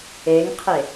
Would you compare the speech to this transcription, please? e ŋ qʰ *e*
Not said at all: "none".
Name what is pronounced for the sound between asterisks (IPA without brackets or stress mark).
e